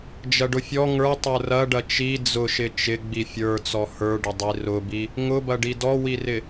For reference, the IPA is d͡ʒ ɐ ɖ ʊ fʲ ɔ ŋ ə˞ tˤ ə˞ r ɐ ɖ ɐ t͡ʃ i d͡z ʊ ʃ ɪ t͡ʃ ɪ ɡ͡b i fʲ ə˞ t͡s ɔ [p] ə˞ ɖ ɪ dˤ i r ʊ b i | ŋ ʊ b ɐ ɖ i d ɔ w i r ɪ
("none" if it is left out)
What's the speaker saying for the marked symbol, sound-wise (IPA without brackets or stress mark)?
h